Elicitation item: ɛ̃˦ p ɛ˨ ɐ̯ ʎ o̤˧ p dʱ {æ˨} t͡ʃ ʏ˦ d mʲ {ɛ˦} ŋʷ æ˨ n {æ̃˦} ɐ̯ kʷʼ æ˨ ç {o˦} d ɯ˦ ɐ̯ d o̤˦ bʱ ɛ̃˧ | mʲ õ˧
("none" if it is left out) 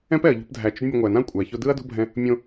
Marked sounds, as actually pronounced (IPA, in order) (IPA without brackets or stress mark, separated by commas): æ˨, ɛ˧, ã˦, o˦